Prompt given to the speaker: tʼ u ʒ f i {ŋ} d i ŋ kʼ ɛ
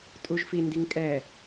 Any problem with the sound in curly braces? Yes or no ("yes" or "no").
yes